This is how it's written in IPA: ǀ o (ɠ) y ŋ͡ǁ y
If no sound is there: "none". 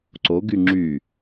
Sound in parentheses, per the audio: ɡ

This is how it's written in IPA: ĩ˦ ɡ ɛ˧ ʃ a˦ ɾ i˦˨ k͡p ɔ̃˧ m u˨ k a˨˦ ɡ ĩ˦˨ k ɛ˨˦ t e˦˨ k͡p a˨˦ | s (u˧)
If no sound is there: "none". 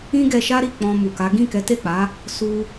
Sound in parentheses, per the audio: u˧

